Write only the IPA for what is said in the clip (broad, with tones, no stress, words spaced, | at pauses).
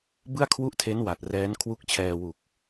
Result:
bɯ˥˩a̯kʰwu˥˩ʔtʰe˦˥n wa˨˩t̚rɛː˦˥n kʰwu˦˥k̚t͡ɕʰɛː˧wu˨˩k̚